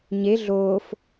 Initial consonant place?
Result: palatal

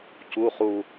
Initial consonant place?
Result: palatal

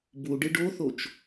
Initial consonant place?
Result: labial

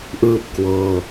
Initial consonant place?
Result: glottal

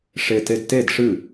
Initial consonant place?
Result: retroflex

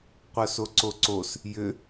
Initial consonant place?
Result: uvular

